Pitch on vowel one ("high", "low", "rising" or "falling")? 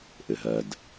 low